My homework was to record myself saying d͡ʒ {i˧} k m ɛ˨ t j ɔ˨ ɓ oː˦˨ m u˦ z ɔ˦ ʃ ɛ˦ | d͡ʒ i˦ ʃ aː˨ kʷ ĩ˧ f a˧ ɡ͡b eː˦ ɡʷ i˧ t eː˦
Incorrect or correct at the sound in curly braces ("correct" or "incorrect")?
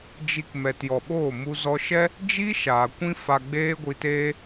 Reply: correct